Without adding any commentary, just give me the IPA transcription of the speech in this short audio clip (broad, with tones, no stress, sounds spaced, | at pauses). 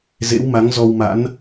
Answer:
z ḛ˧˥ w m a˨˦ ŋ z ɔ˧ w m a̰˧˥ n